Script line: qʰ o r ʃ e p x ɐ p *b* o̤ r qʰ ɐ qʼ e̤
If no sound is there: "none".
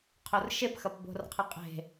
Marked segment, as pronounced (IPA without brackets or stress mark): b